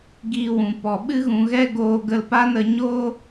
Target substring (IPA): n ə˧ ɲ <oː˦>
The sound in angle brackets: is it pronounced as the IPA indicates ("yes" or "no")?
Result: yes